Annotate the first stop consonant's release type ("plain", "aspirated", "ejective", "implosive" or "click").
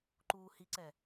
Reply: click